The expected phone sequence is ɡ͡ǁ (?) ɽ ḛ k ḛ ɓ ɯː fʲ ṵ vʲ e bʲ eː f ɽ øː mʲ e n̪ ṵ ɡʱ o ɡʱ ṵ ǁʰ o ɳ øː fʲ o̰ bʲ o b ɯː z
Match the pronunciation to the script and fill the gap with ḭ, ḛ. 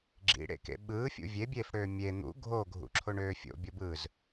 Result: ḭ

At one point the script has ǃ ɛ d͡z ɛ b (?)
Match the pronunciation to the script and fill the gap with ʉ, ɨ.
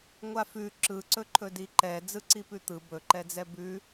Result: ʉ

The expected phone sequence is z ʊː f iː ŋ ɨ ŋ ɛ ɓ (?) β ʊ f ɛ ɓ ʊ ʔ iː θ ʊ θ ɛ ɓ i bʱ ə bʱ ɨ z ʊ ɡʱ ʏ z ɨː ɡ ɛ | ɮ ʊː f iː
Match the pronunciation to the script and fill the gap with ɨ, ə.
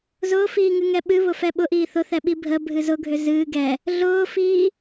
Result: ɨ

